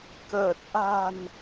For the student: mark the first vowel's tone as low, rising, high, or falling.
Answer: low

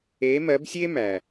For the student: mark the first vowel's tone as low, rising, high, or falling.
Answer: rising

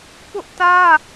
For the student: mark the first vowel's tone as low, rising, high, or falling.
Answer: high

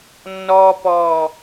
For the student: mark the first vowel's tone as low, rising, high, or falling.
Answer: high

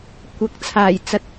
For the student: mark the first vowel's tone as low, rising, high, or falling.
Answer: rising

